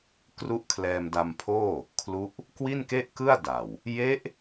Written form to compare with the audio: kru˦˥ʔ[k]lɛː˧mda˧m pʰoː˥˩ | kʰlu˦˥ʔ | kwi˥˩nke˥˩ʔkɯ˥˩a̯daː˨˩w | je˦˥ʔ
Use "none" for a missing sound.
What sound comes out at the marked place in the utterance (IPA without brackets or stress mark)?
kʰ